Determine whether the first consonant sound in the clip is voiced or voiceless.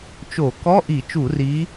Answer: voiceless